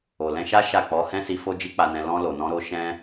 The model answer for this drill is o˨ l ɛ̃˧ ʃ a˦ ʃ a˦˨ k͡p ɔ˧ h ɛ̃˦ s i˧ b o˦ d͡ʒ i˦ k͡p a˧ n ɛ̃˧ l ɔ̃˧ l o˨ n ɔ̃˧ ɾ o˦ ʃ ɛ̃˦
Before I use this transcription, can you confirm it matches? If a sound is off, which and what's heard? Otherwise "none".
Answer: b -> f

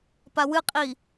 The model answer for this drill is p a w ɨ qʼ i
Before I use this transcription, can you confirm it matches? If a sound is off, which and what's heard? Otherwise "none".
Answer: none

